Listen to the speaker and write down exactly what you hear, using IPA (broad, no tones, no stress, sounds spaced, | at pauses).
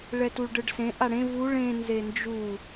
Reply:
ɭ ɛ t u ɭ ɖ ɯ ɖ s ẽ ʔ a ɽ ẽ v u ɭ ẽ n z e n d͡ʒ u